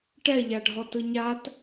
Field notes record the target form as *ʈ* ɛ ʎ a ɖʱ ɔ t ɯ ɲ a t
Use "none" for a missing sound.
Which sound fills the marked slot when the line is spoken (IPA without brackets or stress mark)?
ʈ